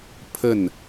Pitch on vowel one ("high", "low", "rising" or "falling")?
falling